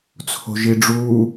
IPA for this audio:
t͡sʰ o̤ ʒ i ɖ͡ʐ uː

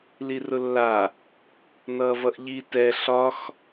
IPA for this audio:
l i r ʊ lː a | n ʌː v ʌ ʔ ʎ i t ɛ ɬ ɒ x

